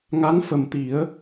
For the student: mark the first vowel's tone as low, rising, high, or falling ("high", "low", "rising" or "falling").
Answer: rising